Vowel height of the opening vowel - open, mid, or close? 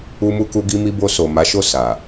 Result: close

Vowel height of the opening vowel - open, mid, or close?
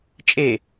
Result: mid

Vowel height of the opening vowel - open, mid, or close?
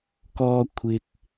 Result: mid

